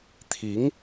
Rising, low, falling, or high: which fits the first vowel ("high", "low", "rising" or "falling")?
rising